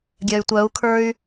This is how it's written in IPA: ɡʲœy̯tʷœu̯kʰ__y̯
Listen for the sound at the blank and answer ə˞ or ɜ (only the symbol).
ə˞